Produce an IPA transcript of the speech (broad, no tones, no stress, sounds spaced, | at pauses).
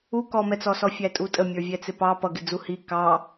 u k ɔ m ɛ t͡s ɔ s ɔ fʲ æ tʼ u tʼ ə mʲ ə˞ vʲ ɛ t͡s ɪ p ɑ p ʌ ɡ ɪ d͡z u h i k ɑ